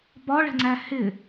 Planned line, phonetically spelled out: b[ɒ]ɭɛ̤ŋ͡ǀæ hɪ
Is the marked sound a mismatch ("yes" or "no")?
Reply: no